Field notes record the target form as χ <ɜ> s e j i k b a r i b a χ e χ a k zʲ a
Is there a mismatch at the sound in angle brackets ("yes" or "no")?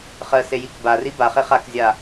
no